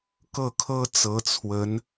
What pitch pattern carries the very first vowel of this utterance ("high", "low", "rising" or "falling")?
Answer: falling